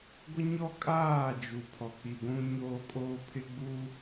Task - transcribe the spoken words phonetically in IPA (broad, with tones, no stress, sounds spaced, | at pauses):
ɡʷ ɪ˦ ɲ ɔ˦ kʼ aː˦˨ d͡ʒ u˨ pʰ ɔ˨ k͡p i˨ ɡʷ ũ˦ ɲ oː˦ kʼ oː˦ pʰ ɪ˦ ɡ͡b u˦